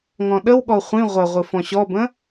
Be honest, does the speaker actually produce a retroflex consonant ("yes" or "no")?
no